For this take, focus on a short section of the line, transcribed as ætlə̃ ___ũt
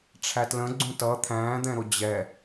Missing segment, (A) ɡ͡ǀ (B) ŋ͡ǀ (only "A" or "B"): A